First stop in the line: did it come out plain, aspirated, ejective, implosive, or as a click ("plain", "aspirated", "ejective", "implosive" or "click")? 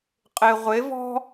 ejective